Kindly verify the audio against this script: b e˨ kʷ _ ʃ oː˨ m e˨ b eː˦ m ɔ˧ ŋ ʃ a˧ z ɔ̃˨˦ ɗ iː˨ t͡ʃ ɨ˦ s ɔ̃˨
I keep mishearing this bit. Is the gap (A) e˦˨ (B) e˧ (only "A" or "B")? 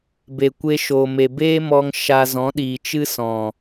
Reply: B